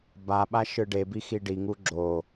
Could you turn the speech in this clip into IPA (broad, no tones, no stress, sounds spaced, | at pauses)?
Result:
b a ɓ a ʃ ɯ ɖ e b i x i ɖ i ŋ u ɡ͡ǁ o